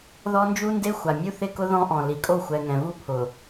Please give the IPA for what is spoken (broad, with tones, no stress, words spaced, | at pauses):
ðɔ˦nd͡ʒu˦nde˦ xʷa˨ mʲu˦θɪ˦˨kʊ˦ ðɔ̃˦ ʔɔ̃˨li˨kʼo˦˨ xʷɛ˨ ŋɛ̃˨vu˦ pʰʊ˨